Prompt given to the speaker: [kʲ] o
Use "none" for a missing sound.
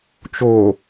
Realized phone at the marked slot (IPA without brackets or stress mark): t͡ʃ